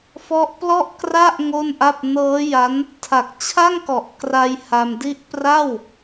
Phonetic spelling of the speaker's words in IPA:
fɔ˦˥ʔplɔ˥˩ʔkra˥˩ʔ ŋo˥˩nʔa˥˩p̚ nɤː˦˥ja˦˥n | tʰa˨˩k̚t͡ɕʰa˥˩ŋkɔ˨˩ʔ kra˧j ha˧mdi˥˩ʔ pra˥˩w

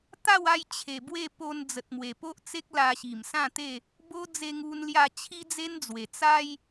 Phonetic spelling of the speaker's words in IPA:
t̪a˥˧wa˧j t͡ɕʰe˨˩bwe˥˧po˧n d͡zə˨t̚mwe˨˩po˦ʔt͡se˦k̚ la˧ɕi˨˩msã˥˧t̪e˥˧ | bo˦ d͡ze˧ŋu˧nlja˧ t͡ɕʰi˦d͡ze˦nd͡zwe˨˩ t͡sa˦j

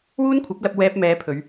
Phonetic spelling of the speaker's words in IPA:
wuː˥nkʷʰɐ˨˥p̚lɐ˧p̚ wɛː˧p̚mɛː˨˧pʰɵ˨˧ɥ

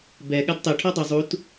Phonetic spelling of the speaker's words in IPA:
bɛ ɠadtˤe ʈʰɔdˤɯ zˤut

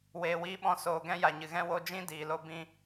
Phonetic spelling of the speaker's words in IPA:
weː˨wiː˧ɓɔ̃˧ soː˨ ɡɛ̃˧ja˨ɲɨ˨ɣɛ̃˧ wo˧d͡ʒĩ˦diː˨lo˧ bĩ˧

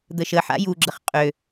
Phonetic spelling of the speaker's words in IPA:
d̪əʃəħa̰ juɡ͡ǁəχ qʼø

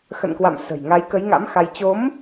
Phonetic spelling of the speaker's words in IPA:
xə̰˧˨nkwa̰˧˨m sə̤˨˩j ŋa˨˦jkə˨˦jŋa̰˧˥m xa˧j t͡ɕo˨˦m

